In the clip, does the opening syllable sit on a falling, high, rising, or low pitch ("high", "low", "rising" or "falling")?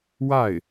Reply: falling